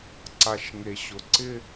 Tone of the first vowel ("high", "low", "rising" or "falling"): low